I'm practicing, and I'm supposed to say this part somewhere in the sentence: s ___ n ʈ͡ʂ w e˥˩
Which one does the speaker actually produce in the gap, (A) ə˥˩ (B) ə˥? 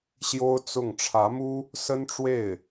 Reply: B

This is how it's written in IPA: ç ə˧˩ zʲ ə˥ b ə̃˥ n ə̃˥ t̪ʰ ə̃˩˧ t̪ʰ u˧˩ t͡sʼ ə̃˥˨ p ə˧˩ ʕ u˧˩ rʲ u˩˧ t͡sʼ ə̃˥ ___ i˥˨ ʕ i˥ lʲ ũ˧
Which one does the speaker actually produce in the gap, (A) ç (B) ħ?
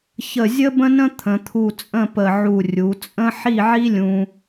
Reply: B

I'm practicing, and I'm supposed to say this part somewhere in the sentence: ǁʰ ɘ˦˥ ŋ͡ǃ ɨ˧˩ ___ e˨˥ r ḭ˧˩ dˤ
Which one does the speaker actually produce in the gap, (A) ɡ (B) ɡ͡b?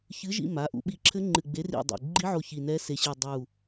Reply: B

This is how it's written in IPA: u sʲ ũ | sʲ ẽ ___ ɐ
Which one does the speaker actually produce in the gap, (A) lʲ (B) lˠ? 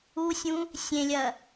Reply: A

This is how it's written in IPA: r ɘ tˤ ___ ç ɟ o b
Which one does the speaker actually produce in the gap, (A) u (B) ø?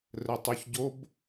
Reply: A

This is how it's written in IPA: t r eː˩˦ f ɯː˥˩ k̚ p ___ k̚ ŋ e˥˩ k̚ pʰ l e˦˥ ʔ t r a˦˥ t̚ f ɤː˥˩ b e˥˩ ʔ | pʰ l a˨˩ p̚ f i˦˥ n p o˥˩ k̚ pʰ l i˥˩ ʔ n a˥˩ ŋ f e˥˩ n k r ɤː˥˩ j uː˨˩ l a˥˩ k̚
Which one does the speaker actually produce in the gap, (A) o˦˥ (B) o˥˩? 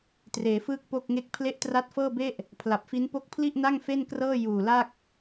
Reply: B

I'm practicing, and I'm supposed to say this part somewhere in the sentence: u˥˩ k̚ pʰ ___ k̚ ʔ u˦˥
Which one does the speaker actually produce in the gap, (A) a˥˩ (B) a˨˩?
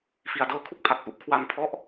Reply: B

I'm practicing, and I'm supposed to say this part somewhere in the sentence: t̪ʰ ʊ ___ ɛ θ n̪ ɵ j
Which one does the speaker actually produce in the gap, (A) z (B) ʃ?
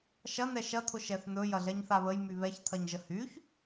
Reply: B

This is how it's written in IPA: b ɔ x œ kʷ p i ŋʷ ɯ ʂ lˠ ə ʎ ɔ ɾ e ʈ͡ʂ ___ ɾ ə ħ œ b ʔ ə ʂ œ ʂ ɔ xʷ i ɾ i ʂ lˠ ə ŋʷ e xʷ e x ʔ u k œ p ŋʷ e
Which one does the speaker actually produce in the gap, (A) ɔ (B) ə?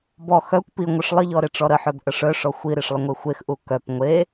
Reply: A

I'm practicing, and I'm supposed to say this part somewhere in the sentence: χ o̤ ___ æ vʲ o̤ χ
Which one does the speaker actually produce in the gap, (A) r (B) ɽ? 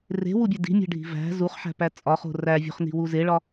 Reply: A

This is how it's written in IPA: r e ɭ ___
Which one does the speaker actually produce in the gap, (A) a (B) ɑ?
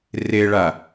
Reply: A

